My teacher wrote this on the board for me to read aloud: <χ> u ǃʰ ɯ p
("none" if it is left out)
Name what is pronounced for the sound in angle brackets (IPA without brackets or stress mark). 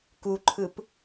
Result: k